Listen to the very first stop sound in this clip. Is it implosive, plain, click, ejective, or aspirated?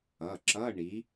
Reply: click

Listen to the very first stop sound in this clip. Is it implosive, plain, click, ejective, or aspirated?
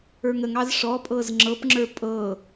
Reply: ejective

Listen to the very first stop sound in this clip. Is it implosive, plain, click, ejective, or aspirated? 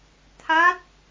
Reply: aspirated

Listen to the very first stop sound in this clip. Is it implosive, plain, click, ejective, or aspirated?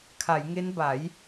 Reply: aspirated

